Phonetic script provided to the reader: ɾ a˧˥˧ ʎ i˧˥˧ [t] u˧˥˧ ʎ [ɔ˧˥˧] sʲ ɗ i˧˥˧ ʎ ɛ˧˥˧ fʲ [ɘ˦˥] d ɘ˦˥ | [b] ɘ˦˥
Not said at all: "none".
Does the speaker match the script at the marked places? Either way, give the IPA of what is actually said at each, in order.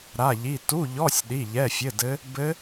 t, ɔ˧˥˧, ɘ˧˥˧, b

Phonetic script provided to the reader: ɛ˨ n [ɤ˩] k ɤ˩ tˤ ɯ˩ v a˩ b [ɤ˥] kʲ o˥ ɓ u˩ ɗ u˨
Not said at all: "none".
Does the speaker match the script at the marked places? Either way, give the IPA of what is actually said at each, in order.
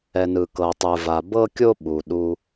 ɯ˩, ɤ˥

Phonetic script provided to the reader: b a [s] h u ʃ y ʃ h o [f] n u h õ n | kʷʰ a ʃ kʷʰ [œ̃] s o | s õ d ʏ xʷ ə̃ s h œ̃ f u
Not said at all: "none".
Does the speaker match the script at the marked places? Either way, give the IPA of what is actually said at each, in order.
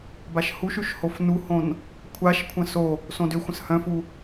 ʃ, f, ə̃

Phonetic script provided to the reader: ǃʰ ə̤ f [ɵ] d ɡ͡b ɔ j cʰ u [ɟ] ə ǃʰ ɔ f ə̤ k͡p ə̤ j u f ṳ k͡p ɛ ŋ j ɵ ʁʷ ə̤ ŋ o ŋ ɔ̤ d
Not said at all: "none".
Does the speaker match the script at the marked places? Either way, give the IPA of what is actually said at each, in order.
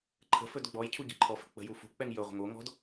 ɵ, ɟ

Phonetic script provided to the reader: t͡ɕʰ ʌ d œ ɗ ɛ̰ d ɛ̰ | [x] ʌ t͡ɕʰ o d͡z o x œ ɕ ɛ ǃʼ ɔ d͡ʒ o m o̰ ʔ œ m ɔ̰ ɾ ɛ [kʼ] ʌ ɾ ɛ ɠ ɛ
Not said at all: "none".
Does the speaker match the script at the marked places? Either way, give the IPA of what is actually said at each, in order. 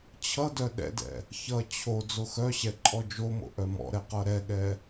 ç, q

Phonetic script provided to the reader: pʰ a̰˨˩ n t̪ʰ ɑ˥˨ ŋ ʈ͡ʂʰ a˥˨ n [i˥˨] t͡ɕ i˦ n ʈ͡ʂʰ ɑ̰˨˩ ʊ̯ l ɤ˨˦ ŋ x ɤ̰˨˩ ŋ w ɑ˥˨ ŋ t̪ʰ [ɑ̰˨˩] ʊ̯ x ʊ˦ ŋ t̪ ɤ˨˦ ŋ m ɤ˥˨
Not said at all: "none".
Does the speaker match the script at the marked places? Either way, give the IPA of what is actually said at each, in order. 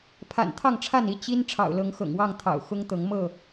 i˥˨, ɑ̰˨˩

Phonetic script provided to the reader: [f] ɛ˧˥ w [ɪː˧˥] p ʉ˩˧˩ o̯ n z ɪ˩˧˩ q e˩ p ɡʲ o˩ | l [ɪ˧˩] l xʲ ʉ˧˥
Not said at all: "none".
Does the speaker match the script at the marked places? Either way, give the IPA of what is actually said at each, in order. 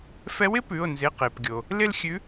f, ɪ˧˥, ɪ˥˧

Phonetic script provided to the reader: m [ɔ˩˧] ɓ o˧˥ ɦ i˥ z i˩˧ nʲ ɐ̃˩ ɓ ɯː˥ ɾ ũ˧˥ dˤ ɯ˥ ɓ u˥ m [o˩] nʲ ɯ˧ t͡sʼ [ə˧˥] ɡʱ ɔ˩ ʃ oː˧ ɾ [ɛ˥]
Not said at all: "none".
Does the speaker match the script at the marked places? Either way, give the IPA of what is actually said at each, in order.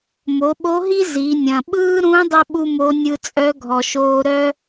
o˩˧, o˧˥, œ˧˥, œ˥

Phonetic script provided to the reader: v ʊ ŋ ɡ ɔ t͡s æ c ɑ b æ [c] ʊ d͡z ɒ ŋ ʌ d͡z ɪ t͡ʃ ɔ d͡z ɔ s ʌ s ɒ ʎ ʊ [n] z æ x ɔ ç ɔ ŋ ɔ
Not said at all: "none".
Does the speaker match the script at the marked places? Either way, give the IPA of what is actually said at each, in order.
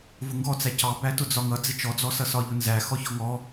t, n

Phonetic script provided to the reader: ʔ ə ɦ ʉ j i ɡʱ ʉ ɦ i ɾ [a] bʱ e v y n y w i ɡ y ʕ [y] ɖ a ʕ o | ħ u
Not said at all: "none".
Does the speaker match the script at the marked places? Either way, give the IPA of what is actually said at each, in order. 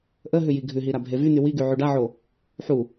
a, y

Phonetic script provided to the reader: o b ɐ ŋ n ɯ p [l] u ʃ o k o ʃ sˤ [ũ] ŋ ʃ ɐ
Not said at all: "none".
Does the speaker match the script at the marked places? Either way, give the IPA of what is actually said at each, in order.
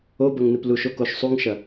l, u

